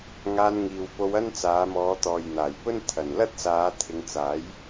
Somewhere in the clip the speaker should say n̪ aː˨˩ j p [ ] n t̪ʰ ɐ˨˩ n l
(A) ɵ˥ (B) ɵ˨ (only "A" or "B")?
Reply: A